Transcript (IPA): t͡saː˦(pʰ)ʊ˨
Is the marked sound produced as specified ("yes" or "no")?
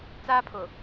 yes